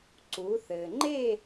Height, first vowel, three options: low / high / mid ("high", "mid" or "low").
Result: high